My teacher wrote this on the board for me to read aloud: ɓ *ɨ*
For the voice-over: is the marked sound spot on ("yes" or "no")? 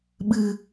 yes